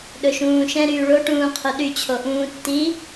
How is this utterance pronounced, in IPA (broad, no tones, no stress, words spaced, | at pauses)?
ɗɵʃũːʃɛ̃ ɾyːɭo ʈũːqʰoɗy t͡ɕʰoʔũːtːi